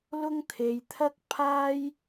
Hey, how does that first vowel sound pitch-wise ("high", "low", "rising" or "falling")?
high